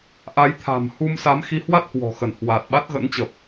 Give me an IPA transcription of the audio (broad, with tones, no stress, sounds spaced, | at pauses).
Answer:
ʔ a˨˦ j t̪ʰ a̤˨˩ m h u˧ m s a˨˦ m x i˨˦ h w a˦˥ t̚ h w ɔ̤˨˩ x ə˧˩ n h w aː˨˩ t̚ ɓ a˦˥ t̚ ɣ ə̰˧˥ n t͡ɕ ə˨˩ p̚